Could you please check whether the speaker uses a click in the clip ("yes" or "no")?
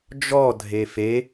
no